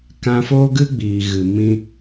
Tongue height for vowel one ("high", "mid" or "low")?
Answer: low